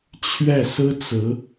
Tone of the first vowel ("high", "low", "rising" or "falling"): falling